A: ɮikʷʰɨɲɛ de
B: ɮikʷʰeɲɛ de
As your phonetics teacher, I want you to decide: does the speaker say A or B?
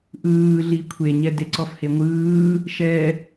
B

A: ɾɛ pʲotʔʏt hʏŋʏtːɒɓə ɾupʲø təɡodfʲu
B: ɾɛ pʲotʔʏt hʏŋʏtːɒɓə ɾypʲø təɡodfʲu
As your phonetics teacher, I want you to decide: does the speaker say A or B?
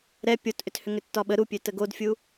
A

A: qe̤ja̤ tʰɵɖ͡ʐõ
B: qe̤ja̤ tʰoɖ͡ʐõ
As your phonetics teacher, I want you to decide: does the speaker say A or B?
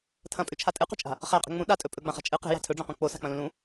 A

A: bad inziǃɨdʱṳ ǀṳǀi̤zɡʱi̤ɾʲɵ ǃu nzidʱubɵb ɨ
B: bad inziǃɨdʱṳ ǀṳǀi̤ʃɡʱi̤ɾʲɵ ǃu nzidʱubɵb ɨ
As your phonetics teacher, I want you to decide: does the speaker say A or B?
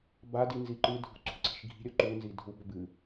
B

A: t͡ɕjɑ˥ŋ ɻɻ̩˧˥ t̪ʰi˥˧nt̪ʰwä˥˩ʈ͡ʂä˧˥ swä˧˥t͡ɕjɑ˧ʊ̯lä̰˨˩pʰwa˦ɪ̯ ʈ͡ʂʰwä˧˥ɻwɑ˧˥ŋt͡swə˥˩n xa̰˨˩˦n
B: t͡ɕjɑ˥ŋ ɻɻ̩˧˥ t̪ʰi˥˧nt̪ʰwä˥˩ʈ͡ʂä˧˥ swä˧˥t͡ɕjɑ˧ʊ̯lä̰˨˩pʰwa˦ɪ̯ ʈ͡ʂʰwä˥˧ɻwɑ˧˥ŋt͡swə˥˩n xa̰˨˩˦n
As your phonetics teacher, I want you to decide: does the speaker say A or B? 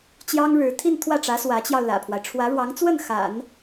A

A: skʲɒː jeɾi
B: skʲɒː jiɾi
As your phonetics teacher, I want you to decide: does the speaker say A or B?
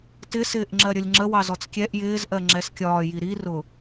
B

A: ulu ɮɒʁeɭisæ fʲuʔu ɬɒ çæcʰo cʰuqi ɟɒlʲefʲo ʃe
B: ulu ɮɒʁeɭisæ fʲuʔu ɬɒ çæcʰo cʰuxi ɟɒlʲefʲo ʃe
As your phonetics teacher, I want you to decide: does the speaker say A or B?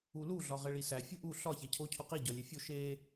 A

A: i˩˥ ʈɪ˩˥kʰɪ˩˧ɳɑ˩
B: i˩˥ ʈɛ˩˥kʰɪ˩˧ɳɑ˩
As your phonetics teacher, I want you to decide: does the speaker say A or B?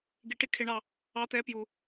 A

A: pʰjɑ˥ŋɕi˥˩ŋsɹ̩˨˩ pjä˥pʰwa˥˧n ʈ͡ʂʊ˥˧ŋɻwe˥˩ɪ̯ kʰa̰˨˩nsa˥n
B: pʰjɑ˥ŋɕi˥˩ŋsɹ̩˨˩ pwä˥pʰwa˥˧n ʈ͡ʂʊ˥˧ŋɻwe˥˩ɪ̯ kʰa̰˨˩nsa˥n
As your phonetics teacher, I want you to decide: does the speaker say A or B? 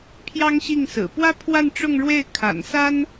B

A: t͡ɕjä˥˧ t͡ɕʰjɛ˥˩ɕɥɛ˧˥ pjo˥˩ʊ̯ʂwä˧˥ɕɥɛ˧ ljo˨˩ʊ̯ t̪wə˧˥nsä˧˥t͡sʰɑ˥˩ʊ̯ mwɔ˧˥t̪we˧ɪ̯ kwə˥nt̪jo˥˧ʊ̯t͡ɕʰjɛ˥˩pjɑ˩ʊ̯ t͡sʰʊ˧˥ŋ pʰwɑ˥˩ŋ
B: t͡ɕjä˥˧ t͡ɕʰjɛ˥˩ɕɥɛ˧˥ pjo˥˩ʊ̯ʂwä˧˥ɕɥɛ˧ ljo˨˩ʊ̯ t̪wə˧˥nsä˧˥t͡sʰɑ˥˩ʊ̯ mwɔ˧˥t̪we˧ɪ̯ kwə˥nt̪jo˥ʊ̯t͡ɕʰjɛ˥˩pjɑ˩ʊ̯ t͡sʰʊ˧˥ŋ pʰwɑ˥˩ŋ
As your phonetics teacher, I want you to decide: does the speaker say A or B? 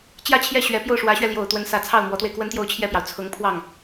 A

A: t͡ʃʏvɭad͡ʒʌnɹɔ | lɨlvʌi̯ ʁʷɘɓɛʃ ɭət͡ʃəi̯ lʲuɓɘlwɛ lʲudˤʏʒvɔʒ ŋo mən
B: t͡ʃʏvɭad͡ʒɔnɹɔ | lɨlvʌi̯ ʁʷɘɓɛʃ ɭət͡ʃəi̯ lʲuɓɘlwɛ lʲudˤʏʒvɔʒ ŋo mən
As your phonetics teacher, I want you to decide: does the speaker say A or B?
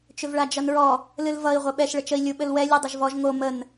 A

